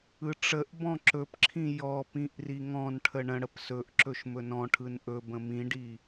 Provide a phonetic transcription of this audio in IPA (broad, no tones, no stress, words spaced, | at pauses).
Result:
ɯʈ͡ʂəʔbɔ̃ ǁɵpǁʰĩ jɔpĩʔ riŋɔ̃nʈʰə ɳə̃ɽəp sɵʔ ǁɵʃmɵnɔ̃ʈʰɯn ʔɵ bə̃mĩɖi